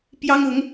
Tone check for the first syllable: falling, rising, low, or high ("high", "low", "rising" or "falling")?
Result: high